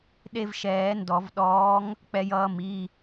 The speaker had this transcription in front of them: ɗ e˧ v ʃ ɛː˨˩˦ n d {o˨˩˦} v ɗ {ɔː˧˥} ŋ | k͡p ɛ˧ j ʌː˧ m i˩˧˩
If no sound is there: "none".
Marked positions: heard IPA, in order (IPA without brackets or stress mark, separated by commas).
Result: ɔ˨˩˦, ɔː˧˥